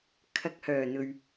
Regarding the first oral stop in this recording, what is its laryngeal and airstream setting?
aspirated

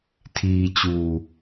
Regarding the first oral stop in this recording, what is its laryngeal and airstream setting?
aspirated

